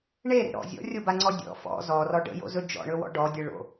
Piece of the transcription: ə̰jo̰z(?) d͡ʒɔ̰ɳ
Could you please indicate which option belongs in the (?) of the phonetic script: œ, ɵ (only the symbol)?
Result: ɵ